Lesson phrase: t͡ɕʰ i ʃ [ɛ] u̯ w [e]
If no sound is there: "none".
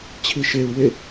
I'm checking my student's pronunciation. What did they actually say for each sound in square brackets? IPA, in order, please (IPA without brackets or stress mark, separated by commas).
e, e